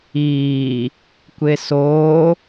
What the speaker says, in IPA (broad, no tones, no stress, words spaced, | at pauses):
iː | kʷesoː